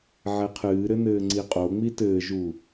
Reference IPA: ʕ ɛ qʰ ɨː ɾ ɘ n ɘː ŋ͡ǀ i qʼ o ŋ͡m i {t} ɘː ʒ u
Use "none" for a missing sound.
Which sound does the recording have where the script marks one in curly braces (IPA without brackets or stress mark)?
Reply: t